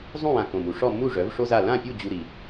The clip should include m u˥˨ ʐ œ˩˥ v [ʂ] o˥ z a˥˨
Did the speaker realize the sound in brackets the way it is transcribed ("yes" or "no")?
yes